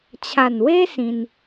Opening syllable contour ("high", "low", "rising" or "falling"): low